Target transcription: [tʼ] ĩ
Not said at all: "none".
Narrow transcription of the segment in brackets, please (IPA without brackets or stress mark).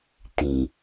t